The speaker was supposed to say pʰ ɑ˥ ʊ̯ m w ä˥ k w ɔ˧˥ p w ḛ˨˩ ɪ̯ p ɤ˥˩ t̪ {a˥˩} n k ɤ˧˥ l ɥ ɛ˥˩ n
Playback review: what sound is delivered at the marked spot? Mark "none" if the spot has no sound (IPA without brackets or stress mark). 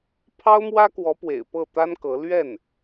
a˥